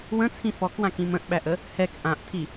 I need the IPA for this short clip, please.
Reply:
w ə̃ t͡sʰ ĩ f ɔ k w ã k ĩ m ə̃ ʔ ɓ æ ʔ ə | h ɛ k ʔ ã ʔ tʰ i

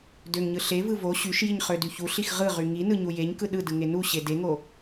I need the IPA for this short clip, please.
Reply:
d ø ŋ ɲ ɯ ɬ e v ɯ v o ɕ y ʃ j i ɲ χ ø d y ç u ɬ i x ʁ ɯ ʁ y ŋ i n ɯ ɲ u j e ɲ k ɯ ɗ ɯ d ɯ ŋ e n u ɕ e d e ŋ o

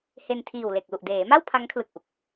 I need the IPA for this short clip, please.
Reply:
h e˧ n tʰ iː˨˩ w l e˨˩ k̚ l u˨˩ ʔ d eː˩˦ m a˥˩ w pʰ a˦˥ ŋ kʰ l ɯ˨˩ k̚ ʔ u˨˩ k̚

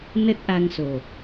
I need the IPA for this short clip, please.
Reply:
n ə˦˥ t̚ ʔ a˧ ŋ s o˨˩

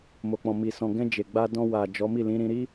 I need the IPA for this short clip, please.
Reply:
m o˨ k͡p ɔ̃˨ m i˨ s ɔ̃˨ ɡ ɛ̃˧ d͡ʒ e˨ ɡ͡b a˧ d ɔ̃˧ w a˨ d͡ʒ ɔ˨˦ m i˦˨ l ĩ˨˦ ɾ ĩ˧ ɾ i˦

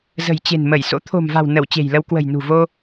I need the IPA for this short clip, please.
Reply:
z ə̤˨˩ j t͡ɕ e̤˨˩ n m ə˧˩ j s o̰˧˥ t̪ʰ o̤˨˩ m v a̤˨˩ w n ə˧˩ w t͡ɕ e̤˨˩ j l ə˧ w k w ə̤˨˩ j n ṳ˨˩ v o˧

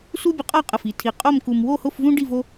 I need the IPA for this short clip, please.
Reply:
s u˥ bʲ ə˧ qʼ ɒ˥˧ qʼ ə˧˩ f i˩˧ tʰ i˧˩ qʼ o˥˧ m k u˧ m w o˥˧ h ʊ˥˧ f v ũ˥ ɖ i˥˧ v o˥

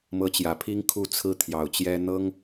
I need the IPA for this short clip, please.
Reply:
m ɤ˧˥ t͡ɕ j ä˨˩ pʰ i˥ ŋ kʰ u˥˩ t͡sʰ ɹ̩˥ t̪ʰ j ɑ˨˩ ʊ̯ t͡ɕ j ɛ˥ n̪ ɤ˥ ŋ

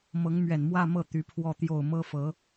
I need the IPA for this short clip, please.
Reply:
m ɤ˧˥ ŋ m ɥ ɛ˨˩ n m w ä˥˧ m ɤ˥˩ t̪ y˧˥ pʰ w ɔ˥˧ t̪ j o˥˩ ʊ̯ m ɤ˥ f ɤ˧˥

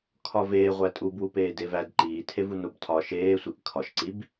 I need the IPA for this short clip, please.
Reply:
kʰ ɒ v eː ʁʷ æ tʼ u b w u p eː d e v æ d ǃ iː tʰ e v u n o b tʰ ɒ ʃ eː sʷ i ʔ kʰ ɒ ʃ ǀ i b

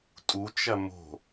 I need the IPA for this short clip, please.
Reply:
tʼ u t͡ʃ ɐ m o̤

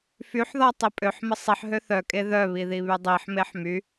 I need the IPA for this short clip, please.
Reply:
f y ħ ð ɔ tˤ i pʼ ø ħ m ə sˤ i ħ ɦ ø θ œ kʼ e ð œ β i ð i β y dˤ i ħ m e ħ m y

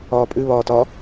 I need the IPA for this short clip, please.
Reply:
ɒː pʼ ʉ β ɒː t ɒ

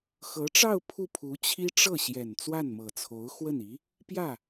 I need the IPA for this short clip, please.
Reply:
x ɤ˧˥ ʈ͡ʂ ɑ˥˧ ʊ̯ pʰ u˥˩ pʰ u˧˥ t͡ɕʰ i˥ ʈ͡ʂ ɤ˥˩ ɕ j ɛ˨˩ n t͡s w a˥˩ n m ɤ˨˩ t͡sʰ o˧˥ ʊ̯ x w ə˥˩ n i˧˥ | p j ä˥˩

